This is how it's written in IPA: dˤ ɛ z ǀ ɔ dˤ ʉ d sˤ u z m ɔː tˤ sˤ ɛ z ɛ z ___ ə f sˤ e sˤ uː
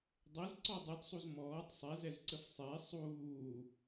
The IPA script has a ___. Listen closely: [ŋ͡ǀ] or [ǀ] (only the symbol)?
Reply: ǀ